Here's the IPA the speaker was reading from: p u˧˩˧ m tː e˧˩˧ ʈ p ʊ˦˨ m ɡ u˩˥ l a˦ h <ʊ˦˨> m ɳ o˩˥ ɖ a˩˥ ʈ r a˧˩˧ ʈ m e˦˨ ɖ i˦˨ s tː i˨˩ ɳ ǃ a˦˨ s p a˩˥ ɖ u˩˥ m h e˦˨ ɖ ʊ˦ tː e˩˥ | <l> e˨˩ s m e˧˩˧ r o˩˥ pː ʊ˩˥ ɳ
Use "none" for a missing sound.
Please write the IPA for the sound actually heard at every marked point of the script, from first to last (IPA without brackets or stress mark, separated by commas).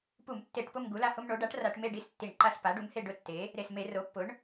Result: ʊ˦, ɾ